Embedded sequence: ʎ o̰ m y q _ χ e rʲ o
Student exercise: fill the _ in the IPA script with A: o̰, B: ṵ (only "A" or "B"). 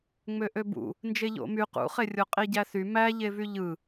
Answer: B